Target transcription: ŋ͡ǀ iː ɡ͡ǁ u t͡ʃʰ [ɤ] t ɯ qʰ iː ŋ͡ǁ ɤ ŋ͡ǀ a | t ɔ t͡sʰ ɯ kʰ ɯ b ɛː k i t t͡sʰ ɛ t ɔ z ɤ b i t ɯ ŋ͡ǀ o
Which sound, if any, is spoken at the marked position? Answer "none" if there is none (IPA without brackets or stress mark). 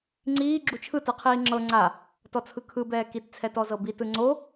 ɯ